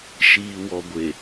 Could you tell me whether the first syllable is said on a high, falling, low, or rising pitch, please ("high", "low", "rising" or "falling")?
low